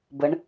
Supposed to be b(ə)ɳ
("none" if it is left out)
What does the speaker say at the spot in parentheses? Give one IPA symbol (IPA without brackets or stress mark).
ə